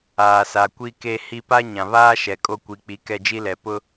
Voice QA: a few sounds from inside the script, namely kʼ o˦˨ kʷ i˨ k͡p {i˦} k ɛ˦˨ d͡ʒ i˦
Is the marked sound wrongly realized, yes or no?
yes